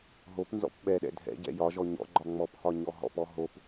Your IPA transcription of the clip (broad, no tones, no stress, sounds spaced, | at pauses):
ɦ o p n z ɔ̰ p ɓ ɛ ɗ ɛ̰ dʱ ɛ̰ ɟ ɛ̰ j ɒ ʒ ɔ ɲ ɔ̰ ɡ͡ǃ ɒ ŋ͡m ɔ p h ɒ ɲ ɔ ɦ ɔ̰ p ɔ ɦ o p